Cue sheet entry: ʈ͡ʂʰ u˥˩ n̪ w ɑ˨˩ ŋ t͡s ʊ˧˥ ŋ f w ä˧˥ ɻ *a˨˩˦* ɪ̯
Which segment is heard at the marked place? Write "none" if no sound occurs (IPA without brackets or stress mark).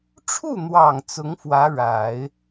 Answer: a˨˩˦